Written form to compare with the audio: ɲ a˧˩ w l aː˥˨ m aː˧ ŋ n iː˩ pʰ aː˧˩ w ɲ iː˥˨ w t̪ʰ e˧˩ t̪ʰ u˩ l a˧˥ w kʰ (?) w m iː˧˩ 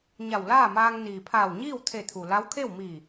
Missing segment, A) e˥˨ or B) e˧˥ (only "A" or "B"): A